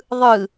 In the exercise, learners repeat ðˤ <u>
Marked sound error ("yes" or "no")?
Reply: yes